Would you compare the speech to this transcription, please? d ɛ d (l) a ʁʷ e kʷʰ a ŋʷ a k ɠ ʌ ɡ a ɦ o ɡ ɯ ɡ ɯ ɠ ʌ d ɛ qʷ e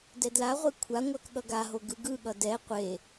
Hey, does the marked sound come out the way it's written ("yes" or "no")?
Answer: yes